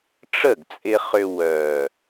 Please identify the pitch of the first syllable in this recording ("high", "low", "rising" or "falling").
falling